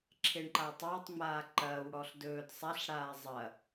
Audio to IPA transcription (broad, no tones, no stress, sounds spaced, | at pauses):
ǁʰ e ɳ ǃ a tˤ ɐː tˤ ŋ͡m aː ǃ ɐː w ɽ ɔ ɬ d ɵː d sˤ a ɬ ɽ aː zˤ ɐ